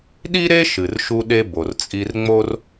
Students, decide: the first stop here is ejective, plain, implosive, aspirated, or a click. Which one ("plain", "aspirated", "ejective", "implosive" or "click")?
implosive